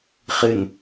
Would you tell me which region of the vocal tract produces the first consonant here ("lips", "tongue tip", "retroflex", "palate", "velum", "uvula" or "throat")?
uvula